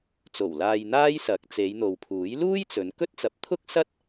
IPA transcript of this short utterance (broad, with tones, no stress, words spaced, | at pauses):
t͡so˨˩wlaː˧j n̪aː˥jsɐ˨˥k̚ t͡se˨˧jn̪o˨wpʰuː˨˥j luː˥jt͡sɵ˨˧nkɵ˥t̚ t͡sɐ˨˥p̚t̪ʰʊ˥k̚sɐ˥t̚